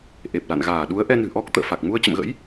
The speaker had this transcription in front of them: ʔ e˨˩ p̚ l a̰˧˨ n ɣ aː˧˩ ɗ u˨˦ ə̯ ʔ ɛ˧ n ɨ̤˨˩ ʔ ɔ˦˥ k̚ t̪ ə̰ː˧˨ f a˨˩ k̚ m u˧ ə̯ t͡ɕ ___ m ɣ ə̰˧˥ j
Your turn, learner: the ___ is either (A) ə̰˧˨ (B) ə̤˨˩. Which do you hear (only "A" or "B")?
A